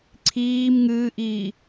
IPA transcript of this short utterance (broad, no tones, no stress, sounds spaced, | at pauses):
ǀʰ iː m ŋ ɨː ʔ iː